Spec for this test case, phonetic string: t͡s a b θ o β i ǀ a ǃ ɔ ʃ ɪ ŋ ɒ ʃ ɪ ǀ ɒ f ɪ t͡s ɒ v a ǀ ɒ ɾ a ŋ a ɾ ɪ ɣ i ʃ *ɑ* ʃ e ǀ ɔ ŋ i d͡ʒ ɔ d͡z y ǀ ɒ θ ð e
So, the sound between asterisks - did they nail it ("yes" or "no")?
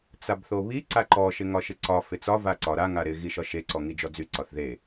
no